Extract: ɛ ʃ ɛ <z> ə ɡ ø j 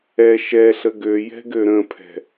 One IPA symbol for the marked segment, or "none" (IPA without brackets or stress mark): ɬ